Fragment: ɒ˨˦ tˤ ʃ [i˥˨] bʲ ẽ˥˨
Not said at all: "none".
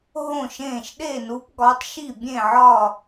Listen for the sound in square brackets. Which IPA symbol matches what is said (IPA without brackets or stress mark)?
i˥˨